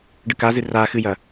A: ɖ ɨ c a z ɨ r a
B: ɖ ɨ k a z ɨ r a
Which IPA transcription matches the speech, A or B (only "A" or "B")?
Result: B